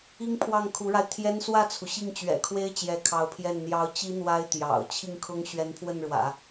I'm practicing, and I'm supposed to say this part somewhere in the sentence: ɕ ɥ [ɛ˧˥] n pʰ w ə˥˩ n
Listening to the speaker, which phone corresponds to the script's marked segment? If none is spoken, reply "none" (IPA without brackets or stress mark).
ɛ˧˥